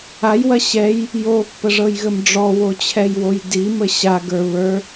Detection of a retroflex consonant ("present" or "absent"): present